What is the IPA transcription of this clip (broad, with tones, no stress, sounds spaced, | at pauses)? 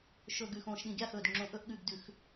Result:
ʃ ɵ˨˩ ɡ ʉ˨˩ x õː˨˩ ʃ ɗ ĩ˨˩ ɡʲ a˦˨ x ɵː˨˩ d ŋ͡ǁ õ˨˩ ʔ ɵ˦˨ ʔ ɠ ʉ˨˩ ɡ d ʉ˨˩˦ x